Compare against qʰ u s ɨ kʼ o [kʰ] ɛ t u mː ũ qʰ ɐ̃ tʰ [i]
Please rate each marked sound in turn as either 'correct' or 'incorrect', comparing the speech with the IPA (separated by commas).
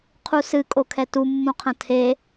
correct, incorrect